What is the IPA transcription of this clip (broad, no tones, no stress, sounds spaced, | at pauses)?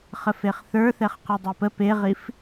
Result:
χ ə f e χ θ ə˞ θ ɛ χ q ɛ dˤ e p ə p e ʁ i f